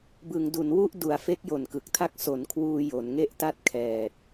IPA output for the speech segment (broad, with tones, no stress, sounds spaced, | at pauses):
b ɯ˩˦ ŋ d u˩˦ n w u˥˩ ʔ d u˩˦ a̯ f e˦˥ k̚ j o˨˩ n k ɯ˨˩ k̚ tʰ a˥˩ k̚ s o˩˦ n kʰ w uː˧ j o˩˦ n ŋ e˥˩ ʔ t a˥˩ t̚ kʰ ɛː˨˩ t̚